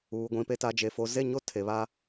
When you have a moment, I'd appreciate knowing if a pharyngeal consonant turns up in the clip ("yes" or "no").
no